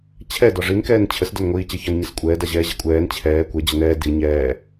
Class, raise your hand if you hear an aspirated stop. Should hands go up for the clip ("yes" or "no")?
yes